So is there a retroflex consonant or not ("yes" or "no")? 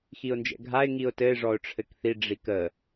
yes